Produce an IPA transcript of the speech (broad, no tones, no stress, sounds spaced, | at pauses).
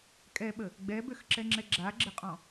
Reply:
kʼ ɛ ɓ ə | ɡ͡b ɛ b ø x ǁ ɛ ŋ͡ǁ ɛ ɡ͡ǁ a ɡ͡ǁ ə qʼ ɔ̃